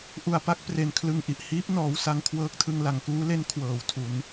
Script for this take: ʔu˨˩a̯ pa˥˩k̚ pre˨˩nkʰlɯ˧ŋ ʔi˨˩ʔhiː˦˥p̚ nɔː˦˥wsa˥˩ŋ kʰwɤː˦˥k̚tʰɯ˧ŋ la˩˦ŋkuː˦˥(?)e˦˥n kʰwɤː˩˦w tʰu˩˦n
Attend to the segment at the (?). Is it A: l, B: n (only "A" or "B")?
A